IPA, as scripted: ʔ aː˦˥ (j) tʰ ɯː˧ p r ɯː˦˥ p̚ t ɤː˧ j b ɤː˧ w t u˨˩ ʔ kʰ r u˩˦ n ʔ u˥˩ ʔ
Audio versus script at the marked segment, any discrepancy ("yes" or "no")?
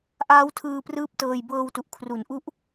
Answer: yes